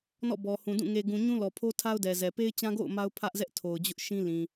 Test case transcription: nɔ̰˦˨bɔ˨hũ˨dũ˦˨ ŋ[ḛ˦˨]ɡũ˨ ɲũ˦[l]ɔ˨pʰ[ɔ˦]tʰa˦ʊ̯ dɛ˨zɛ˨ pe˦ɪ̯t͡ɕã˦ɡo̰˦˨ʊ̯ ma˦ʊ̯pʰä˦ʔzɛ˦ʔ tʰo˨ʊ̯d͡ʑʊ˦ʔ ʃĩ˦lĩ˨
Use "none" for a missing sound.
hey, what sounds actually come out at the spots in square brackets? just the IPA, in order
e˨, l, o˦

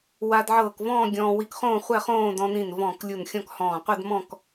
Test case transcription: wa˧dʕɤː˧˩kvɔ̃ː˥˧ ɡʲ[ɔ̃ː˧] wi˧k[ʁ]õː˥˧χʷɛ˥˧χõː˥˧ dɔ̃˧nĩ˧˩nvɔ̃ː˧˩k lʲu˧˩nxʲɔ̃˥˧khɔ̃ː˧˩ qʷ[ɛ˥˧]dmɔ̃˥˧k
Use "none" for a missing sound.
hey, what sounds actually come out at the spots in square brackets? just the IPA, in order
ɔ̃ː˧, χ, ɛ˥˧

